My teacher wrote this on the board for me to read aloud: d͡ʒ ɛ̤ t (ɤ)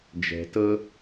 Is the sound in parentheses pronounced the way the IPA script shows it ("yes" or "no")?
yes